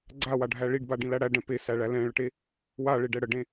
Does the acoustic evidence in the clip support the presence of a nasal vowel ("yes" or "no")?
yes